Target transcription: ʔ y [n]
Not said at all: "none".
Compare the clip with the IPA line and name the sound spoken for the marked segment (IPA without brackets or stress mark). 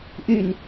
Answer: n